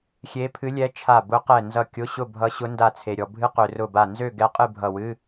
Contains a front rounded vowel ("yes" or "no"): yes